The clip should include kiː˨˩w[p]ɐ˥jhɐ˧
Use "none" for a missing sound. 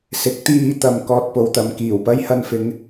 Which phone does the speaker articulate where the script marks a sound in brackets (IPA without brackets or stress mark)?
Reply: p